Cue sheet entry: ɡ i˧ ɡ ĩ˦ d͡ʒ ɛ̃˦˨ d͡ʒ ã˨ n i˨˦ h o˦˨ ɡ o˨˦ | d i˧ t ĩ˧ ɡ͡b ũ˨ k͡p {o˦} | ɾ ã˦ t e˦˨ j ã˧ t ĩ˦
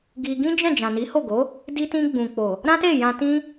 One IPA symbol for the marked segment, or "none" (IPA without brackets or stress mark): o˨